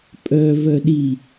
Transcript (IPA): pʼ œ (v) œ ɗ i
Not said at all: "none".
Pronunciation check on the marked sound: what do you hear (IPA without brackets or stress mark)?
v